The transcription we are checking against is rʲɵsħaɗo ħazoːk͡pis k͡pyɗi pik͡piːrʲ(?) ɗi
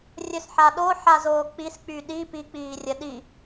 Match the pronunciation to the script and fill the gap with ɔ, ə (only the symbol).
ə